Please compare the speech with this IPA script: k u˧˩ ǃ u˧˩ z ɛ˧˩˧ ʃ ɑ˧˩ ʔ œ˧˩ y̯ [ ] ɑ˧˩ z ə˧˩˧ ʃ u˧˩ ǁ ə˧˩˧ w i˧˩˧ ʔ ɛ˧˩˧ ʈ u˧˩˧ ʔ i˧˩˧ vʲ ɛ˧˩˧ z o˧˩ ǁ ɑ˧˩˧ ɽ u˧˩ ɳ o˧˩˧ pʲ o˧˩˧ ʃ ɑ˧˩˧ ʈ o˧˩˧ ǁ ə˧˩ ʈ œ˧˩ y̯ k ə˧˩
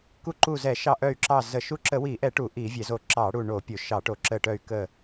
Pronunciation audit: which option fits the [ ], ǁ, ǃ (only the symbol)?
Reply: ǁ